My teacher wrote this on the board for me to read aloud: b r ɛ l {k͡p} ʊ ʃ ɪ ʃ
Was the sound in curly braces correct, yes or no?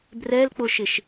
yes